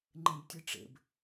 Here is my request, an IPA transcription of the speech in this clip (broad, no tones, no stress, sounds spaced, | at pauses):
ŋ͡ǃ ẽ b tʲ ɨ ʈ͡ʂ ḛ b